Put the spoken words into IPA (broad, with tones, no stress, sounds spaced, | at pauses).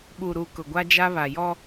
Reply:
ɓ u˨ ɾ u˨ k ʊ˨ ɡʷ a˦ d͡ʒ a˦ β a˨ j ɔ˦